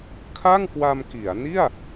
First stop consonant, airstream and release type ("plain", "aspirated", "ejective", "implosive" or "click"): aspirated